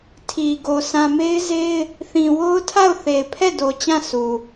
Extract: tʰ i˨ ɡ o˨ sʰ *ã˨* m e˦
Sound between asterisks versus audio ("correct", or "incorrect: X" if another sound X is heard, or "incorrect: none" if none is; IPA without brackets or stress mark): correct